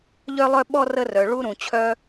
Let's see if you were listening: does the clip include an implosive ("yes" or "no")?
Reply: yes